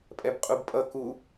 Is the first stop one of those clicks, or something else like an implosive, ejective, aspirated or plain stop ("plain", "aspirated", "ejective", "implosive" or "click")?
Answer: ejective